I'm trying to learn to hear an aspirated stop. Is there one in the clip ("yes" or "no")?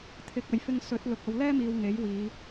yes